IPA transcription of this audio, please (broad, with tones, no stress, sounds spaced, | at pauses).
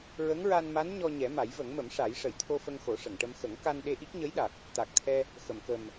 ɹ ə˧˥ ŋ ɹ a˧ n m a˧˥ n ɲ ɔ˧ ɲ ɛ˨˩˦ m a˨˩˦ j v ə˨˩˦ ŋ m ə˨˩˦ m ʂ a˨˩˦ j ʂ ə˨˩˨ j t̪ʰ o˧ f ə˧ ŋ x o˨˩˦ ʂ ə˨˩˨ ŋ ʈ ə˧ m x ə˨˩˦ ŋ k a˧ n ɗ e˧ ʔ i˦˥ k̚ ɲ ə˧˥ j ɗ a˨˩ k̚ | t̪ a˨˩ k̚ t̪ʰ ɛ˧ | x ə˨˩˨ m k ə˨˩ m